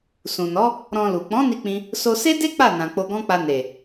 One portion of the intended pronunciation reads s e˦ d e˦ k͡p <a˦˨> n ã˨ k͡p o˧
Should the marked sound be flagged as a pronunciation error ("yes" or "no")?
no